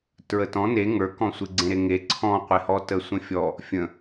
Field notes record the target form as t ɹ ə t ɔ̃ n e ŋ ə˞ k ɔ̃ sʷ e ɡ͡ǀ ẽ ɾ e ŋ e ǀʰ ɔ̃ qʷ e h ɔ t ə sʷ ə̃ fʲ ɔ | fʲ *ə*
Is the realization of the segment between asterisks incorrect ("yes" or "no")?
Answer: yes